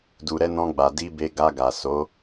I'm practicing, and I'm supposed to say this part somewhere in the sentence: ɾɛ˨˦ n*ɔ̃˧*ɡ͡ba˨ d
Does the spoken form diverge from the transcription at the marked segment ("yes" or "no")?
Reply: no